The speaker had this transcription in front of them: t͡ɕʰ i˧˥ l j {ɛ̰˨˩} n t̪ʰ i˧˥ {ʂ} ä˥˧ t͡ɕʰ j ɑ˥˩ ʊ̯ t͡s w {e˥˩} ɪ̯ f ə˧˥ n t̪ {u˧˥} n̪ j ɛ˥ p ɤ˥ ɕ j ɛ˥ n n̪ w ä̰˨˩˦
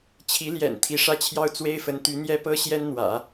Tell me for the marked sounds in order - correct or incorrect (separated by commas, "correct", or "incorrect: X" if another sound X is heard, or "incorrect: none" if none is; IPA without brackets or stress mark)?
correct, correct, incorrect: e˥, incorrect: y˧˥